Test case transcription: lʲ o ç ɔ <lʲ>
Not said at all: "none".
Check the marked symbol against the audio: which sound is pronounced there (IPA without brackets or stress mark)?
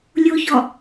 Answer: none